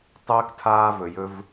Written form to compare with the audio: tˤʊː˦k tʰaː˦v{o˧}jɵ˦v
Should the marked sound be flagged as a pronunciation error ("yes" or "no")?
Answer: yes